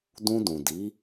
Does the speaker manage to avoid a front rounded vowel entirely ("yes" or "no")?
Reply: yes